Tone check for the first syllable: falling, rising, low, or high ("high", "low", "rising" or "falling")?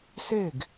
falling